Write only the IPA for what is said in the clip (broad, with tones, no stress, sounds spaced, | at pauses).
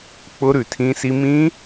k͡p ʊ˦˥ ɾ ʉ˧˩ tʰ ĩ˦˥ s i˦˥ m ĩ˦˥